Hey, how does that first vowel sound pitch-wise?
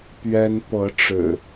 high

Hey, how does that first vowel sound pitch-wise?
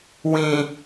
low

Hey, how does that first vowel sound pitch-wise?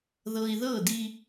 low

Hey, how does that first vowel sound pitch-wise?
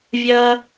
high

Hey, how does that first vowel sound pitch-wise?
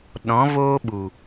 rising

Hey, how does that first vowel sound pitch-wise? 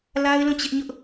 high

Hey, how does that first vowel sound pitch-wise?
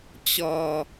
low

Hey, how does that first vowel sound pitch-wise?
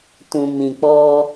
low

